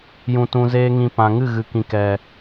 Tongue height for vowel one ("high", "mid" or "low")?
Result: high